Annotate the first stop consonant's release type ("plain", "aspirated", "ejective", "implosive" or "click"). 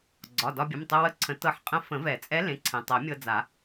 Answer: click